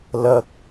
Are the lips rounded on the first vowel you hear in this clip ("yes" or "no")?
no